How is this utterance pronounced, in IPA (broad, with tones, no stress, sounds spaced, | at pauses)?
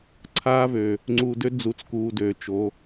ǀʰ aː˦ v ø˨ | ŋ͡ǀ uː˨ d ø˦ d͡z u˨ t͡s k uː˨ d øː˨ t͡ʃ o˨˦